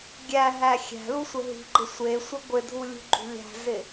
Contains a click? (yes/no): yes